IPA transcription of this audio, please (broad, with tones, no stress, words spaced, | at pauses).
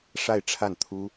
ʂa˥˧ɪ̯ʈ͡ʂʰa˥˩nt̪ʰu˥